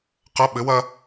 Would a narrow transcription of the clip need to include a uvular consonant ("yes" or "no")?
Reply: yes